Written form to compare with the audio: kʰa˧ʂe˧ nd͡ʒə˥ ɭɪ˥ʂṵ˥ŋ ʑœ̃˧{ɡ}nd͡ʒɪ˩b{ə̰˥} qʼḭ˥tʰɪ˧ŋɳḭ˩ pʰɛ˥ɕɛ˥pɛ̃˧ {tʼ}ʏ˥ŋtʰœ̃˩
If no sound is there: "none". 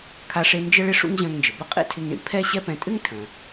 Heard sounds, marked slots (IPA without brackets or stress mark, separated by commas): ŋ, ə˥, tʼ